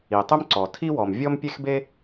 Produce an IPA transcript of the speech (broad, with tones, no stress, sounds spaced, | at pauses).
i˩ tˤ ʏ˥ m ǀ ɔ˩ tʰ i˥ w ɔ˩ m vʲ ɔ˥ m pʲ e˥ x b e˥